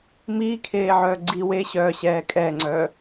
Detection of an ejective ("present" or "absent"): present